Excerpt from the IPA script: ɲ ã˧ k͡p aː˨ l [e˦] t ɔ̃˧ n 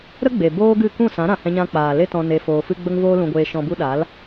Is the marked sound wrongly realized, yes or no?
no